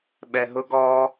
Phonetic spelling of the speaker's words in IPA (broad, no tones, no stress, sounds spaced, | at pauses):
ɓ ɛ ɦ ʊ ɡ ɔ